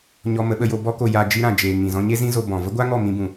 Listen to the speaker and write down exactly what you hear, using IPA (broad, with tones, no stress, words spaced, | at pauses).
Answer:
ɲɔ˧ mə˨˦ɓə˧ jo˧ bɔ˦ko˧ ja˧ d͡ʒi˦ɾã˨ d͡ʒeː˨ ŋĩ˨zɔ̃˧ɲe˦ zĩ˦zo˧ bɔ̃˨ və˦ɡʷa˦ŋɔ˦˨ mĩ˧bũ˨